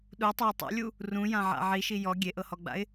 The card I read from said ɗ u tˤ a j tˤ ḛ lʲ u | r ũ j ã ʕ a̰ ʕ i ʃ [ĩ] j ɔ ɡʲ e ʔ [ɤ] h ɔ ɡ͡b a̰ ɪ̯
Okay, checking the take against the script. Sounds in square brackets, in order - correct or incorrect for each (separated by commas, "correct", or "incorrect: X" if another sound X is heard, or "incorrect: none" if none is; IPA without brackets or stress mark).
incorrect: i, correct